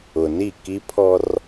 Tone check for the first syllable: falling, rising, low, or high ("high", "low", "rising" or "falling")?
low